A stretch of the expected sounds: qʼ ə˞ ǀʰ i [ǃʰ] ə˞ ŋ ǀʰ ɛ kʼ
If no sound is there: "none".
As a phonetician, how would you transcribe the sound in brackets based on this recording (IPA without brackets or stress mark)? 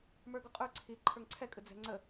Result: ǃʰ